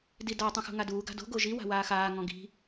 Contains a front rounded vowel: no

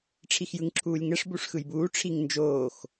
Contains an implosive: no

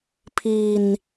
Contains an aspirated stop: yes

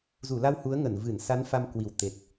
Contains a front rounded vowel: no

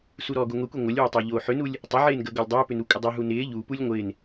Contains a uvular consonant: no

